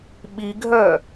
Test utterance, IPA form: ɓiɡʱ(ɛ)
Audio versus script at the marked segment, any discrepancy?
yes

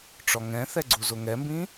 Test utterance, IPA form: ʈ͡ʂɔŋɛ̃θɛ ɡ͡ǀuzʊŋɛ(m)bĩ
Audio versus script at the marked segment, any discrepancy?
no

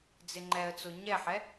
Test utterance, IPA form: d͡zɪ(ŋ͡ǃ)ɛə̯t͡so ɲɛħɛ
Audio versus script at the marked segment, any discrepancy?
no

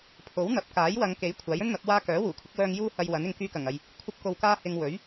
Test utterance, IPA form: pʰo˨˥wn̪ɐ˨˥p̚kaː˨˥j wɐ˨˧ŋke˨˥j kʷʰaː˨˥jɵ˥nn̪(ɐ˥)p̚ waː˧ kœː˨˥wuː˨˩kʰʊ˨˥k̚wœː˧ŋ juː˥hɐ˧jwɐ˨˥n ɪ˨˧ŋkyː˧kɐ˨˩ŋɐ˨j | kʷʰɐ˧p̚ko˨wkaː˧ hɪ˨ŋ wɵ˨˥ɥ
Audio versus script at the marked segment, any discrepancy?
yes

